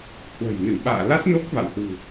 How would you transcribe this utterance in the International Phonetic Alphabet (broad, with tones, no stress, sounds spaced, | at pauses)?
h w ə̤˨˩ j n ɨ˧˩ ɓ a̰ː˧˨ l a˦˥ t̚ n o˦˥ k̚ v a̰˧˨ w h w ṳ˨˩